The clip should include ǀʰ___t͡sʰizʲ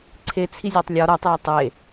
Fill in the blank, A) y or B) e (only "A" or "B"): B